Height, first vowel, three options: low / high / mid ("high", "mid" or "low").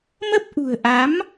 mid